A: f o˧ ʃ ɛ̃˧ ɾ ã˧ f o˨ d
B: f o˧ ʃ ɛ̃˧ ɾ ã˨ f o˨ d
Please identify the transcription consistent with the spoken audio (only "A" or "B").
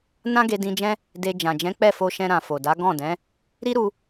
B